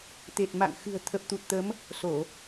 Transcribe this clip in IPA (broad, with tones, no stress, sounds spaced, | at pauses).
t̪ e˨˩ t̚ m a̰˧˨ ŋ x ɨ̤˨˩ ə̯ t̪ʰ ə˨˩ p̚ t̪ u˨˩ t̚ t̪ ə˨˦ m | s o˧˩˨